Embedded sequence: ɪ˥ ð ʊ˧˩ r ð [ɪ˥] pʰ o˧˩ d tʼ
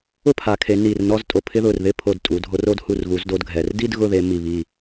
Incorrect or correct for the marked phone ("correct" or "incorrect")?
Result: correct